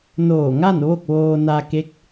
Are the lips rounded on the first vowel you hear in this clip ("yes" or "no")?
yes